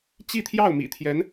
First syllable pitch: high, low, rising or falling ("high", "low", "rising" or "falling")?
falling